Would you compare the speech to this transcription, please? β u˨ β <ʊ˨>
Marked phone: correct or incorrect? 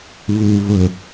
correct